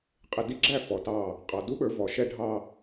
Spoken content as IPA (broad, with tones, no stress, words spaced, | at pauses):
qʼɪ˨di˦ɡ͡ǁæ˦˨ fɔ˨tɑ˦˨ | qʼɑ˨du˦ɓə˞˨˦vɔ˨ ʃɛ˦ɖʱɑ˦